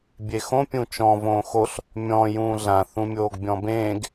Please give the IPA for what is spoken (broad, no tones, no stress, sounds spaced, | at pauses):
bʲ e x õ pʲ ũ t͡ʃ ɔ̃ v õː x o ɬ | mʲ ɔ̃ j ũː ɮ ã θ ũ mʲ oː ɡ bʲ ɔ̃ b ẽː ɡ